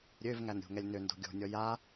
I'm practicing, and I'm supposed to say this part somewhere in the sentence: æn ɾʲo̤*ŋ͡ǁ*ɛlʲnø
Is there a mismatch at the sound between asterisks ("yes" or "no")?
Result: yes